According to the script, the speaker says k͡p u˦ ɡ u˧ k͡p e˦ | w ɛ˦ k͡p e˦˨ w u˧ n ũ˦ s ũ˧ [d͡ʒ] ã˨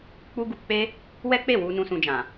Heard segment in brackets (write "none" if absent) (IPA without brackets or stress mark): d͡ʒ